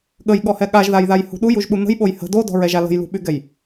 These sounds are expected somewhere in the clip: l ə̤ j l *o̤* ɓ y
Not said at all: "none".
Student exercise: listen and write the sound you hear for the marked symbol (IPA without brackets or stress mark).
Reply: ṳ